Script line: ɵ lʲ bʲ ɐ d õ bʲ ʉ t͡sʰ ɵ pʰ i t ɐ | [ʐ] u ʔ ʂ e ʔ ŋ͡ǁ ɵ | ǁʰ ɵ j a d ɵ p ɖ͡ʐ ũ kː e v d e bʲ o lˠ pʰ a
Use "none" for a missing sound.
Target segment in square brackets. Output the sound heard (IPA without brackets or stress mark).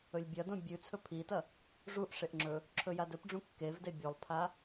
ʐ